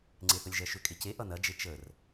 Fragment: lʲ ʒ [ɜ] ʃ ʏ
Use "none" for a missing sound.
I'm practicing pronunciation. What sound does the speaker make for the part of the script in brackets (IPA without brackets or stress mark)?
ɜ